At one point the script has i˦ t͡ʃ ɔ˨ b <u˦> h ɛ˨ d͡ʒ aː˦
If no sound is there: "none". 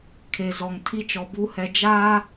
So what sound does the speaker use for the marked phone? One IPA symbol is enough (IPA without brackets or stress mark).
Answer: u˦